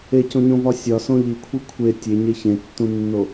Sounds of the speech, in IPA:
e c õ ɲ õ v ɒ sʲ ɒ s õ ʎ i kʷʰ i kʷʰ e tʲ e ɲ e ç ẽ tː ũ nː o

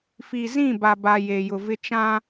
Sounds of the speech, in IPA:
f i˨ z ĩ˦˨ b a˨ b a˨ j e˨ j ʊ˨ v ɪ˦ t͡ʃ ã˦

